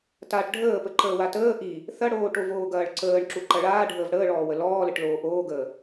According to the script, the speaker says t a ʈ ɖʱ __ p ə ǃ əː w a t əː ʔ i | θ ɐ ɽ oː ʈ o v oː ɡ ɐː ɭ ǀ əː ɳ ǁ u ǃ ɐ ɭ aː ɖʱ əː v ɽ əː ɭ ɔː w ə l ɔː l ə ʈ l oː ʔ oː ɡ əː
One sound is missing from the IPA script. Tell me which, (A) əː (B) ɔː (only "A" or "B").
A